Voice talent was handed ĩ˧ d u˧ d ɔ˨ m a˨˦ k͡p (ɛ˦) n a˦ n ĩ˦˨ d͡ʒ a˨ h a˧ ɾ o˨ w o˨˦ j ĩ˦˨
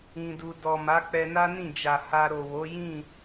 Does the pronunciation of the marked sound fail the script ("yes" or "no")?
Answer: yes